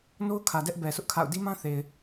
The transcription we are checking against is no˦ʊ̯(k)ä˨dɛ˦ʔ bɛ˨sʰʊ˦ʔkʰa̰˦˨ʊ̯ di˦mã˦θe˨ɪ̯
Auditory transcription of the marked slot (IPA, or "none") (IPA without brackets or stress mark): kʰ